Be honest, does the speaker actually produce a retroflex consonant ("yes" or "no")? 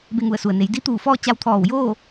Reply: no